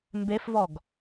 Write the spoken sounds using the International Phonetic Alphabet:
m b e f v ɔ ɡ

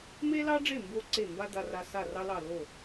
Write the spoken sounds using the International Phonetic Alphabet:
m e˥ l ɑ˥ ɖ͡ʐ e˥˩ m b o˧ ǀ e˥˩ m b a˥ d̪ a˧ r a˧ s a˥˩ r ɑ˥ l ɑ˥˩ l o˥˩

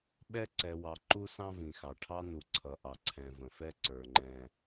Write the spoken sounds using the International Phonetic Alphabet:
ɓ ɛ˦ ǀ ɛ˨ w ɑ˨ ǃ u˦ s ɑ̃˦ v ĩ˨ x ɑ˨ ʈʰ ɑ˦ n u˨ ǀʰ ʌ˨ ʔ ɑ˨ ǀʰ ɛ̃˨ v ə̃˨ f ɛ˦ ǀ ə˞˨ ŋ͡ǃ ɛ̃˨

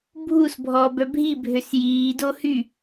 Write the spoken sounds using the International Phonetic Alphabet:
bʱ u s bʱ ɔː b œ bʱ i bʱ ø s j iː d o h y

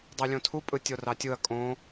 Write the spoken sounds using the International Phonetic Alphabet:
dˤ i lʲ õ tʰ u pʼ ɯ tʲ o r ɑ tʲ ɯ ɐ̯ kʼ õ

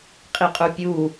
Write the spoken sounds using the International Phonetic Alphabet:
qʼ i qʼ u pʲ u

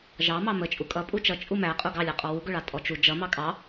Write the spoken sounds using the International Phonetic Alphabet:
ʒ ɑ m ɑ m ə t͡ʃʼ u kʼ ʌ pʼ u t͡ʃ ʌ t͡ʃʼ u m æ qʼ u ɡ ɑ lʲ ɑ qʼ ɔ w u ɡ ʊ ɭ ɑ tʼ ɔ t͡ʃ u d͡ʒ ʌ m ɑ kʼ ɑ

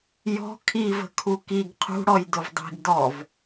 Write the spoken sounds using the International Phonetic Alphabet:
j ɔ̤ kʰ i v ə̤ kʰ u k i ɡ qʰ ṳ ɽ ɔ j d ʊ v dˤ i̤ ɡ d ɔ v

